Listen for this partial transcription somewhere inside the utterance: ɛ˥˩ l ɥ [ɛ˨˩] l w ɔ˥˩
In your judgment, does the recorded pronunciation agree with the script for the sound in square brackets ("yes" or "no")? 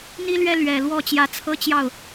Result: yes